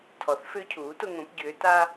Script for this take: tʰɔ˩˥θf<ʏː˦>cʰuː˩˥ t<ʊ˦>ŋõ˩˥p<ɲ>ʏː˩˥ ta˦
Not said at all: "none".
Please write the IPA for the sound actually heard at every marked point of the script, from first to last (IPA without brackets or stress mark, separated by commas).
ʏː˦, ʊ˦, ɟ